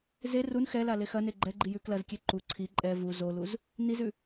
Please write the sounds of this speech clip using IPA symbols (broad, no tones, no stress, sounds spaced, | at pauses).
z e r u n x ɛ l a l e x ɐ n e ɡ͡ǃ ɛ ɡ͡ǃ i j ʉ k l ɐ z kʲ e ǃ u ǀʰ i ǃʼ ɛ v u z o l u z | n i z ʉ